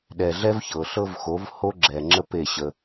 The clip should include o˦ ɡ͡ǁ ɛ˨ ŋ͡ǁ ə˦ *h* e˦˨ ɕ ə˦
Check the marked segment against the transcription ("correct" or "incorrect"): incorrect